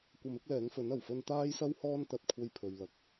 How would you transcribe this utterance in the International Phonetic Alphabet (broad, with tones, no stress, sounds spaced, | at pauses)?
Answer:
kʷ ɐ˧ m ɪ˥ k̚ l ɛː˨˥ ŋ f ɵ˨˥ n ɐ˨˩ w f ɵ˥ n t̪ aː˥ j s ɐ˥ w h ɔː˥ n t̪ ɐ˧ t̚ kʷʰ ɐ˧ j pʰ ɵ˨ ɥ l ɐ˨ k̚